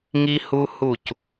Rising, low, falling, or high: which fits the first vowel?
high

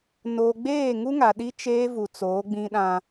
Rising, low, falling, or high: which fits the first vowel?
low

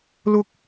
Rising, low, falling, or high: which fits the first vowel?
high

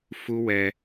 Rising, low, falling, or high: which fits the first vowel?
high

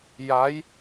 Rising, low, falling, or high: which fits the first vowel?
rising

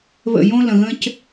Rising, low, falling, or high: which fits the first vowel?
falling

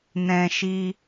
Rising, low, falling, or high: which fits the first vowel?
high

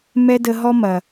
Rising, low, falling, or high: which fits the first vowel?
high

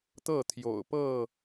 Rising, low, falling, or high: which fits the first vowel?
falling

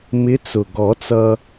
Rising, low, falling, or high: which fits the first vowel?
rising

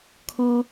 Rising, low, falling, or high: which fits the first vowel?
high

